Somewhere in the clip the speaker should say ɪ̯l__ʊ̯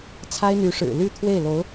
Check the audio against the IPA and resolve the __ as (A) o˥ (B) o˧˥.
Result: B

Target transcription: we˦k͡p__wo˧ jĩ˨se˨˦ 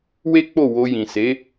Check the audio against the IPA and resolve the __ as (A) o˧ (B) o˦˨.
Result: B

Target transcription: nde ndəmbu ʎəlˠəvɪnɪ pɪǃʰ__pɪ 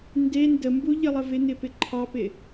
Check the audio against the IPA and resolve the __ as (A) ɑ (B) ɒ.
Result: A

